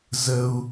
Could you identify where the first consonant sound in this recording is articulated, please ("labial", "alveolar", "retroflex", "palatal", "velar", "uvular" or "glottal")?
alveolar